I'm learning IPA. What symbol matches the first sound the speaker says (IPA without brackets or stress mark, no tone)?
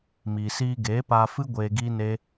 m